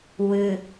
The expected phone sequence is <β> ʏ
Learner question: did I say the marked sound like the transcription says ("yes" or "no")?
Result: no